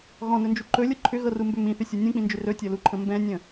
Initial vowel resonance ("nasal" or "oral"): nasal